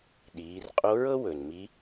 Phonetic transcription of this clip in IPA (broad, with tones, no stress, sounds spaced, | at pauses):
ɗ iː˩˧ r qʼ o˧˥ ɹ ɤ˥ w ɵ˩ n m i˧˥